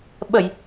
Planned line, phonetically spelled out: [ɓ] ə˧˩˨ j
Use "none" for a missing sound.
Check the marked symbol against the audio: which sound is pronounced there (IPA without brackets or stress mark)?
ɓ